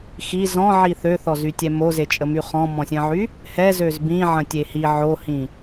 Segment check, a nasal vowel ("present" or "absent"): present